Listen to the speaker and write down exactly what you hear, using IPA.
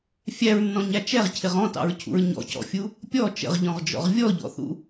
fʲ æ ɹ nː ɔ̃ ɲ æ t͡ʃ ɛ ʁ cʰ ɪ ʁ ɔ̃ t ɑ̰ ɹ cʰ ṵ ɹ ɲ ɔ̰ c ɔ̰ fʲ u | pʲ ɔ t͡ʃ ə̰ ʁ ʎ ɔ̃ ʁ d͡ʒ ɔ̰ ʁ vʲ ɔ ʎ ɔ̰ θ ṵ

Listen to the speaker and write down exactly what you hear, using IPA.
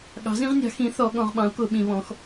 ɠ ɑ̤˩˥ z ĩ˩˥ ʁ nʲ ɑ̤˩˥ x ĩ˩˥ θ ɔ˩˧ ɠ ɔ̃˩˧ ʁ ɓ ɑ̃˩˥ u̯ k ʊ˩˧ ɓ ĩ˩˧ β ɔ̃˩˥ x

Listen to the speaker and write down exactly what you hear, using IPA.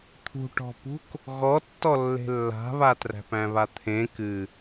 t̪ʰ ṳ ʈ ɔ̤ p ṳ k | ɣ ɔ tː ɔ lː e̤ lː a̤ β a t r æ̤ p æ̃ β a t̪ʰ ẽ k ɨ

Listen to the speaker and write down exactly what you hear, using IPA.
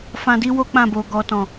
f ã˧ d i˦ w o˦ k͡p ã˦˨ b o˨ ɡ ɔ˨ t ɔ̃˨

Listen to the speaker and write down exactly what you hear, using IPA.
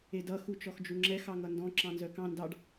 e d ʌ x u t͡ʃ ɔ x d͡ʒ u ŋ͡ǁ ɛ x ɑ ŋ ʌ n d ɔ̃ ǁ ɑ̃ n z œ k ɑ̃ n d ɑ ɖ

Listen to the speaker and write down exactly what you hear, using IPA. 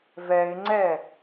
v ɛ ɪ̯ ŋ͡ǀ ɛ

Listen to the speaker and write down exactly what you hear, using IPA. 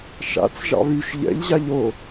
ʃ a̰ t͡s ʒ ɑ̰ β y ʃ ʎ ɛ̰ ʎ ʑ a ʎ o

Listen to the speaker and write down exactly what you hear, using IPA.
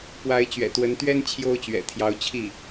p w a˧˥ ɪ̯ t͡ɕ ɥ ɛ̰˨˩ t̪ w ə˧˥ n t̪ ɥ ɛ˥ n t͡ɕʰ j o˥ ʊ̯ t͡ɕ ɥ ɛ̰˨˩ t̪ʰ j ɑ˧˥ ʊ̯ t͡ɕʰ i˥˩

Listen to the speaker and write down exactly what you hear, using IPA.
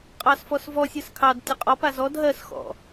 qʼ ɑ s f ɔ s v ɔ sʲ ɜ s kʰ ɑ d tʲ ə qʼ ɔ p a z ɔ d ɦ ɜ s x ɔ̰

